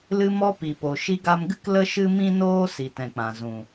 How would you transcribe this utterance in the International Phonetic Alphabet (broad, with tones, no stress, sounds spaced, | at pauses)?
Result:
l ɨ˧ m ɔ˧ p i˨ p o˨ ʃ i˧ ɡ a˧ m ɡ ɨ˦ k l ə˦ ʃ ɨ˦ m ĩ˦ n oː˦ s i˨ t ɛ̃˨ k͡p ã˨ z ũ˨